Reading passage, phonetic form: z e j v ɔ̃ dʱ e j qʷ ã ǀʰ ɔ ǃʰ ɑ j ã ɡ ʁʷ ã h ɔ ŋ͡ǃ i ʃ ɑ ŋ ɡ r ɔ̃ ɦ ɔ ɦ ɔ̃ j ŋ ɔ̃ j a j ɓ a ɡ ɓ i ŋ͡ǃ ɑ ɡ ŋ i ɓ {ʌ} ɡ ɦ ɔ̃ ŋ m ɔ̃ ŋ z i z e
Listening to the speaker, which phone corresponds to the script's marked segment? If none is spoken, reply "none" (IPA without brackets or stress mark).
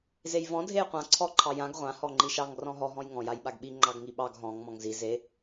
ɑ